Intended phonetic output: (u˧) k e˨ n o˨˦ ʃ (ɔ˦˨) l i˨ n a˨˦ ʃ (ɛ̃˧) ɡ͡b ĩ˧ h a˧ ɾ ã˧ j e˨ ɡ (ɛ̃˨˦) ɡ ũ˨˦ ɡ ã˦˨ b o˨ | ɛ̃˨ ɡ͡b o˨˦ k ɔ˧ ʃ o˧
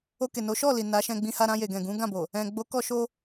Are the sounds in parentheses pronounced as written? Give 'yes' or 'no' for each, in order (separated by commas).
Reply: no, yes, yes, no